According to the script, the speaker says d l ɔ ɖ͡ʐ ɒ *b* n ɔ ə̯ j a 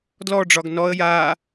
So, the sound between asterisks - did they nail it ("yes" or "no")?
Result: no